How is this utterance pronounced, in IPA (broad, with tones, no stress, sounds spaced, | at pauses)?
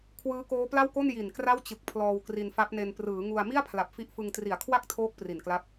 kʰ w ɯː˦˥ k oː˦˥ p l a˥˩ w k o˥˩ n j i˨˩ n k r a˥˩ w t͡ɕ ɯ˨˩ k̚ pʰ l ɔː˧ w k r i˧ n f a˦˥ p̚ n e˧ n p r ɯː˩˦ ŋ u˧ a̯ m i˥˩ a̯ pʰ l a˨˩ p̚ f i˦˥ ʔ f ɯ˧ ŋ t r i˨˩ a̯ kʰ w a˥˩ k̚ tʰ oː˦˥ k̚ p r i˨˩ n k l a˦˥ p̚